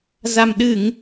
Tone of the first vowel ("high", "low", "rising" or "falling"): low